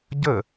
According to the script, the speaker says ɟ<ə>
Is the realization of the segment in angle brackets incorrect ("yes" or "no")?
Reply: no